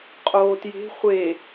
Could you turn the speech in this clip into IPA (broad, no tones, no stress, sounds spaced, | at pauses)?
qʼ oː t j e̤ χʷ e